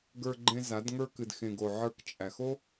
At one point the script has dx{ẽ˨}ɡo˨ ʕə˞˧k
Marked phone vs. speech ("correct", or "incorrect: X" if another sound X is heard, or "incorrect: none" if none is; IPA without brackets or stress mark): correct